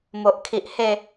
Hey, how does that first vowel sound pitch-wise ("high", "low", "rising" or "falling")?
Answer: low